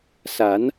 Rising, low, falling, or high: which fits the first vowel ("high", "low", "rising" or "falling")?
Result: rising